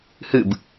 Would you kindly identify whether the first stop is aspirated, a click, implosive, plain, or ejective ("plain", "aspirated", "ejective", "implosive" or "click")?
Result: plain